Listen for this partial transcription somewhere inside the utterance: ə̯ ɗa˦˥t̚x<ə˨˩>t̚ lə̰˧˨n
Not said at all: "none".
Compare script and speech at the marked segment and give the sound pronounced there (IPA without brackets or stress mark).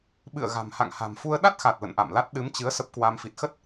a˨˩